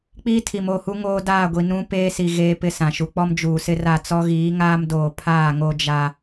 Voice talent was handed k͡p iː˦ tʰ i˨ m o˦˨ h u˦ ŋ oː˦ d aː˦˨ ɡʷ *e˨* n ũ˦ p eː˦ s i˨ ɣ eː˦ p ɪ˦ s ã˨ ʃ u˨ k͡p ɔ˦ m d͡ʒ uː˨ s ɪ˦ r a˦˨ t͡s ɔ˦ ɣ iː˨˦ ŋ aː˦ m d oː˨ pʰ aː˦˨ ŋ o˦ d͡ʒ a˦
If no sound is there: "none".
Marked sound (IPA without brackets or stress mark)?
i˨